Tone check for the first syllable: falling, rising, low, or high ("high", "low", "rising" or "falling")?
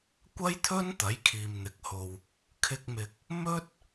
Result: high